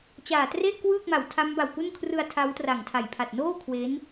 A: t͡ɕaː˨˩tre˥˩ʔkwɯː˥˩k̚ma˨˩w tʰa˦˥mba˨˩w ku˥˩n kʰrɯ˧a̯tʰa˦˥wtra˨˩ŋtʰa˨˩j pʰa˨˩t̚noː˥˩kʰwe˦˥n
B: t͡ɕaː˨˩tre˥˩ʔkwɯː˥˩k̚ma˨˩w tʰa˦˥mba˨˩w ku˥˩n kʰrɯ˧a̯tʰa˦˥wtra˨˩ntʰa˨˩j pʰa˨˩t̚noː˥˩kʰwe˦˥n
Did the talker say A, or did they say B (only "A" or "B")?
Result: A